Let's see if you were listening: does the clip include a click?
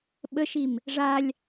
no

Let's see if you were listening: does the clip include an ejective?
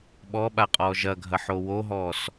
yes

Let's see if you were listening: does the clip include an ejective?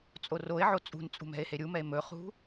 yes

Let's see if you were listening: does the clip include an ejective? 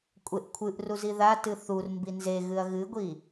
yes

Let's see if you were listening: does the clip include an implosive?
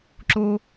no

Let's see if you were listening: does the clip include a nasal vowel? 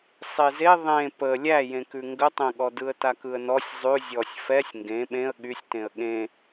yes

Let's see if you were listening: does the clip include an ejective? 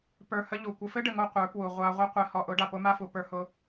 no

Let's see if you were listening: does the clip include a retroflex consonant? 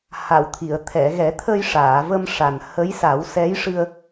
yes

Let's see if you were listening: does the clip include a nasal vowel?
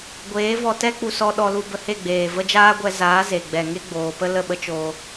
no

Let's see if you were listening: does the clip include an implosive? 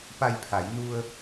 no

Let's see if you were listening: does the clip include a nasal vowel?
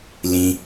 yes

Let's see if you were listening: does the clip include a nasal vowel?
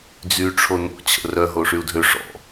no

